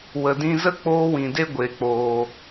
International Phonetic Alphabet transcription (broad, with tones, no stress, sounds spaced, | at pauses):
w ə˨ d ĩ˧ z ə˦ k͡p oː˦ w ĩ˨ d e˦ ɡʷ e˨˦ k͡p oː˧